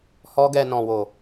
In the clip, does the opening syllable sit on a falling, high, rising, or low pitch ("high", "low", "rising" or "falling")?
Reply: high